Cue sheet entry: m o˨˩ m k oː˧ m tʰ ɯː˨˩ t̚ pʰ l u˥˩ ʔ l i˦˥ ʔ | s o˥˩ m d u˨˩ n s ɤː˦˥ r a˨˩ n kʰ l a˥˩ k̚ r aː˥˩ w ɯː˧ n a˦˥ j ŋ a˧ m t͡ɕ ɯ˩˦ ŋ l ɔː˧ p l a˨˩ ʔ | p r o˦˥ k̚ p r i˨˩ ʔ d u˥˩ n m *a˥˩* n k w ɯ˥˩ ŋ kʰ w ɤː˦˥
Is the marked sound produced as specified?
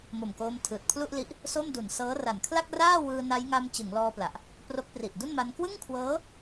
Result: no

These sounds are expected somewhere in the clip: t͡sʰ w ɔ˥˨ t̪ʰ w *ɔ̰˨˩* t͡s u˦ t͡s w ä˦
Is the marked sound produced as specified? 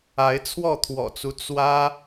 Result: yes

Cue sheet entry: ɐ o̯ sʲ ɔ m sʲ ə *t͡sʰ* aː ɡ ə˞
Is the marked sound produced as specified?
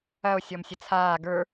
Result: yes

